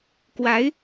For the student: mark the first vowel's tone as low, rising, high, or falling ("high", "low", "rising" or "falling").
rising